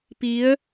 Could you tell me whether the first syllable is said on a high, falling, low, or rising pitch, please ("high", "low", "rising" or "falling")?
rising